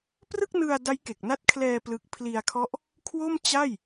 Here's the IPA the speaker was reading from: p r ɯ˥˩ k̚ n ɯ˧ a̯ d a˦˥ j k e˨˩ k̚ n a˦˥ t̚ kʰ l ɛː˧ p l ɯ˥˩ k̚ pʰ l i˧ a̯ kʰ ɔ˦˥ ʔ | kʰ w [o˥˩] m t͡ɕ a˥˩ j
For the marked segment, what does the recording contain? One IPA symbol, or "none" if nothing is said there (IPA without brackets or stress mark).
o˥˩